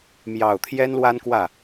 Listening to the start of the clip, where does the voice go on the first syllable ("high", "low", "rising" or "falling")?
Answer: low